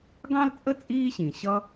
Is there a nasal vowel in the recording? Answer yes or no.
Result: yes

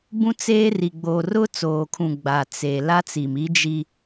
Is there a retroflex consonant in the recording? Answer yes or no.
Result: no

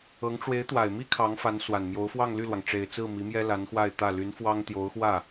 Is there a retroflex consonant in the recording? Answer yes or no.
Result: yes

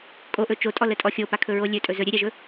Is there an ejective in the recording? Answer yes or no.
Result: yes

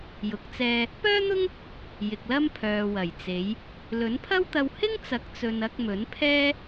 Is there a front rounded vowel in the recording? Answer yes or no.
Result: yes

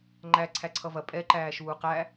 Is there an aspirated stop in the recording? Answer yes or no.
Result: yes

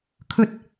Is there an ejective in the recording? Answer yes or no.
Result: no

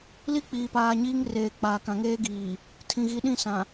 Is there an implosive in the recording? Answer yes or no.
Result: yes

